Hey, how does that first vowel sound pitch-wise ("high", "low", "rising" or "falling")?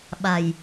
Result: low